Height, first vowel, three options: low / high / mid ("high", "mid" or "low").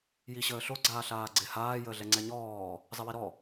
high